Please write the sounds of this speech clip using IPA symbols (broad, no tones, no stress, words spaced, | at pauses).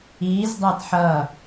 izdˤat ħʌ